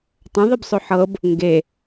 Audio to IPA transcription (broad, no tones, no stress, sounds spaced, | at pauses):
tˤ ə̃ ðˤ ɘ b sˤ ʊ ħ ɤ b | ŋ ɡ e